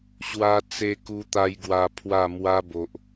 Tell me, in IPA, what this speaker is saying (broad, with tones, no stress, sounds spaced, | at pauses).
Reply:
ɕ w a˧ t͡s e˧ k u˧ t̪ a˦ j ɡ w a˧ pʰ w a˥˧ m w a˦ b o˨ ʔ